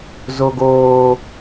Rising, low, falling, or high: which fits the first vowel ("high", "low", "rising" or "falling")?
low